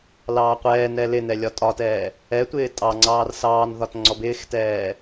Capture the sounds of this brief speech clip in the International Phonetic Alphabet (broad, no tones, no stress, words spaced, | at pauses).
lɑːqʷɛːnɛ lɪnɛ lʲɒtʼɒtɛː | ɛtʷɪː tʼɑŋ͡ǀɑːr sɑːnðɒt ŋ͡ǀɔbɪːxtɛː